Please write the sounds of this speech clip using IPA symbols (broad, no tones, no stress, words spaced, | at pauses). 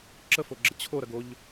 ǁəfoɡ͡ǁə t͡ɕʰo ɾɐɡoʎ